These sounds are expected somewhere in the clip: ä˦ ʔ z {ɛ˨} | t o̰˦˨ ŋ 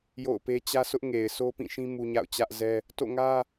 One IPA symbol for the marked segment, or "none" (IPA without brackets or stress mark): ɛ˦